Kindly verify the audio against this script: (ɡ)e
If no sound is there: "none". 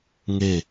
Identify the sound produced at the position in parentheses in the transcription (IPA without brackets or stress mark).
ŋ